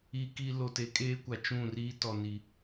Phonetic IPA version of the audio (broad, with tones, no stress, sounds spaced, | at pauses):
i˨ k i˨ l o˨ t e˨ kʼ eː˦ kʷ a˨ t͡ʃ ũ˦˨ r iː˦ t ɔ˨ n i˨